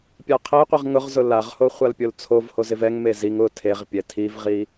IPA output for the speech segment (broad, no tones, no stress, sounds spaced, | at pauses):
pʲ a qʰ e qʷ i ʁ ŋ ʊ ʁ z ʊ l a ʁ h o χʷ a l pʲ o l t͡sʰ o v h o z ɪ v ɛ ŋ m e z i ŋ ʊ tʰ e ʁ pʲ ɛ tʰ i v ʁ i